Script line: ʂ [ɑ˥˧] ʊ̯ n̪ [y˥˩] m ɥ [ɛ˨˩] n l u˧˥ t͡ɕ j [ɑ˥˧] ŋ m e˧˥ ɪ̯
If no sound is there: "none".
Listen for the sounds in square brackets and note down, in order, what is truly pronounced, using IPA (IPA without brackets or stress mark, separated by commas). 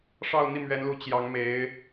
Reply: ɑ˥˧, i˥˩, ɛ˧˥, ɑ˧˥